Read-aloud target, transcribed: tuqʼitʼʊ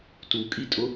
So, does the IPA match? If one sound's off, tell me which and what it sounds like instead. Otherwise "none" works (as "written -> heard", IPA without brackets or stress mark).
qʼ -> kʼ